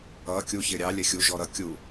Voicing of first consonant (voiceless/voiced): voiceless